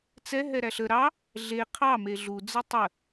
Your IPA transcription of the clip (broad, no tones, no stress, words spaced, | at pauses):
t͡sɛ ɦɛɾæɬə ɾɑ | ɮe qʰɑ meɮu d͡zətˤə